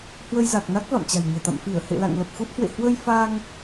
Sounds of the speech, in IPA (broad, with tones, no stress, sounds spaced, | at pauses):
h w ə˧ j z a˨˩ k̚ n a˦˥ k̚ v a̰˧˨ m t͡ɕ a̤˨˩ j ɲ ɛ̤˨˩ t̪ a̰˧˨ m f i˧˩ ə̯ h ḛ˧˨ l a̰˧˨ ŋ l ə˨˩ p̚ x u˦˥ t̚ h w ḛ˧˨ h w ə˧ j f a˧ ŋ